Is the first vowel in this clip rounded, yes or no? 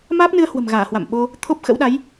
no